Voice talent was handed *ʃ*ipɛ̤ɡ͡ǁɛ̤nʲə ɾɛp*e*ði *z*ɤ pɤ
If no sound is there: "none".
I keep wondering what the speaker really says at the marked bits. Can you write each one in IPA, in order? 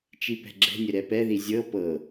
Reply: t͡ʃ, ɛ, zʲ

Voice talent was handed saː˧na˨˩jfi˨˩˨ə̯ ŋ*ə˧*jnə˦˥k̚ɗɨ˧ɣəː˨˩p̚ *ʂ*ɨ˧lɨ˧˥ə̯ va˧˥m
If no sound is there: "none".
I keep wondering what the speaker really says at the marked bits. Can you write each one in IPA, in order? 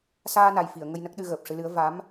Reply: ə˧, ʂ

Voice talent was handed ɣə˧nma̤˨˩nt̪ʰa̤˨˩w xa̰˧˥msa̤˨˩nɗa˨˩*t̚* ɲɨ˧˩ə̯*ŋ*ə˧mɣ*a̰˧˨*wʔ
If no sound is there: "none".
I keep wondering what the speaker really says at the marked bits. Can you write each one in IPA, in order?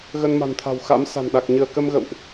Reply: k̚, k, ə̰˧˨

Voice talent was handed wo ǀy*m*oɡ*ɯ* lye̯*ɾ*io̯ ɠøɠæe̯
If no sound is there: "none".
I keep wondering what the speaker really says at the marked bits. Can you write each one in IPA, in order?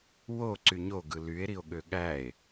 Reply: ɲ, ɯ, ɾ

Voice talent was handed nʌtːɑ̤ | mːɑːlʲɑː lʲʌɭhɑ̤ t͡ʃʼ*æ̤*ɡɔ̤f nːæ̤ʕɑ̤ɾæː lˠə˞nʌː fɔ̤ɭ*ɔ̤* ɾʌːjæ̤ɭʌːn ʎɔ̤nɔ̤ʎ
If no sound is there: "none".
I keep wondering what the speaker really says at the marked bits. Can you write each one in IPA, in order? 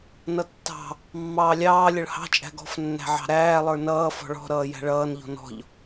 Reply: æ̤, ɔ̤

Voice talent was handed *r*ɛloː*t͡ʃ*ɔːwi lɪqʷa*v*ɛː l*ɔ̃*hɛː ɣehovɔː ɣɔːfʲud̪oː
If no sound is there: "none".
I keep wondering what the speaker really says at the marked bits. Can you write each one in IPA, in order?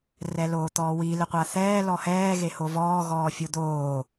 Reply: r, t̪, θ, ɔ

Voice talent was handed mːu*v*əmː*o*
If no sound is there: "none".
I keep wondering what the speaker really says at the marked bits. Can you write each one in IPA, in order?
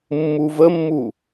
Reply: v, u

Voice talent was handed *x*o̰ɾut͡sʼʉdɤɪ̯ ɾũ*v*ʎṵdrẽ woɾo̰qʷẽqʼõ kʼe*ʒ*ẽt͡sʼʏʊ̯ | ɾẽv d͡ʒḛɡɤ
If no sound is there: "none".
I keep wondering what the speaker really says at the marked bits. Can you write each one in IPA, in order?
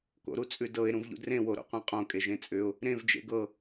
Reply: k, v, ʒ

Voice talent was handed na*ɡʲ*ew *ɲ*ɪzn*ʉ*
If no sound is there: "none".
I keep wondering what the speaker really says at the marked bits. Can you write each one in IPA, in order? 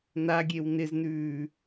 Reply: ɡʲ, n, ʉː

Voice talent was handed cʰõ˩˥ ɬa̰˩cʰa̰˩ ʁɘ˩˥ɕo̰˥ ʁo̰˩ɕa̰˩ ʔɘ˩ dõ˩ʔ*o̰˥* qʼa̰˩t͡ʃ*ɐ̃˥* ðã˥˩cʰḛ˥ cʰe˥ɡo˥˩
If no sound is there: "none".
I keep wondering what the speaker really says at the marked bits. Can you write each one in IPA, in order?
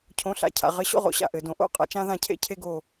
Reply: o̰˥˩, ã˥

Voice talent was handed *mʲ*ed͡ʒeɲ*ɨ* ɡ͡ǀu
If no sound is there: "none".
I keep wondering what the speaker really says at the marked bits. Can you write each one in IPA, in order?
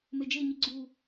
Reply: m, i

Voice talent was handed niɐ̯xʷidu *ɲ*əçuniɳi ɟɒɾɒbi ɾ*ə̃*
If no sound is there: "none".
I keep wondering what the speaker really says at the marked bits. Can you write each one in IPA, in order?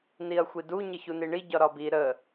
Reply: ɲ, ə

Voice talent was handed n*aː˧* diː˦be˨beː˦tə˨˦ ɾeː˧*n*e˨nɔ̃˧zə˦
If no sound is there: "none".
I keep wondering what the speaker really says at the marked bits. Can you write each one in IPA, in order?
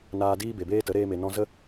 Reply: aː˧, m

